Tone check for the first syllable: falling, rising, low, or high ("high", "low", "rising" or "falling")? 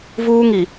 high